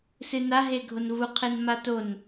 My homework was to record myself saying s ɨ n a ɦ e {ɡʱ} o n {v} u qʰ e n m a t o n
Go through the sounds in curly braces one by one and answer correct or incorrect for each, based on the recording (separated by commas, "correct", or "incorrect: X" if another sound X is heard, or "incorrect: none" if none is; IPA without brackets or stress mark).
correct, correct